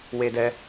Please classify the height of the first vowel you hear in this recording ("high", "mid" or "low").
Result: mid